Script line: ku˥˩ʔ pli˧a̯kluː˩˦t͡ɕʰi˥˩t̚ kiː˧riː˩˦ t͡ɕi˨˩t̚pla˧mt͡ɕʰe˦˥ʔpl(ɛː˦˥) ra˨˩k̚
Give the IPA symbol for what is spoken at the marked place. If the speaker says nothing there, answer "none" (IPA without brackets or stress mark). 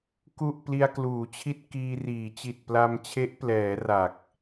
ɛː˩˦